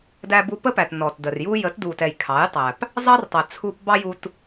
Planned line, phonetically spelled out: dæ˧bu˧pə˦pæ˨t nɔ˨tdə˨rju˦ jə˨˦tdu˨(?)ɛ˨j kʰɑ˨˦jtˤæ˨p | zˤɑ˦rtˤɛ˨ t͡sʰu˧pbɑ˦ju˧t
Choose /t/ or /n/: t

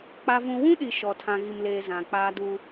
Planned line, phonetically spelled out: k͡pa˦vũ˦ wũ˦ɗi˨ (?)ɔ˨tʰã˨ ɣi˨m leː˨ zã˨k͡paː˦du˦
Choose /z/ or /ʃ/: ʃ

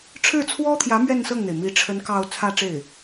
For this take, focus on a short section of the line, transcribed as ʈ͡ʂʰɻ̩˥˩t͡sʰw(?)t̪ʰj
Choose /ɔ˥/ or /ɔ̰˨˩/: ɔ˥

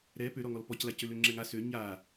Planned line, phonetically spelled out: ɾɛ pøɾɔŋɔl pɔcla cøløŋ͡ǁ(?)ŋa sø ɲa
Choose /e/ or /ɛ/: ɛ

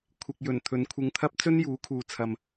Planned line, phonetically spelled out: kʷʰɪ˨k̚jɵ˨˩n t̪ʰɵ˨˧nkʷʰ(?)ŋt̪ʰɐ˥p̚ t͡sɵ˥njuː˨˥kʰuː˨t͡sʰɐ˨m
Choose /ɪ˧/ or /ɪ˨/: ɪ˧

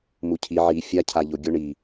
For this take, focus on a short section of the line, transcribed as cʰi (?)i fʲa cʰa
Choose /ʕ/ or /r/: ʕ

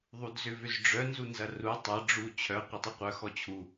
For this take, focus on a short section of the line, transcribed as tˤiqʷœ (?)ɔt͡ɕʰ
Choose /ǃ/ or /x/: x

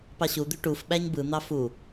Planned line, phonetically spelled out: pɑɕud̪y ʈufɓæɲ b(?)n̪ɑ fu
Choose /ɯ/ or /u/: ɯ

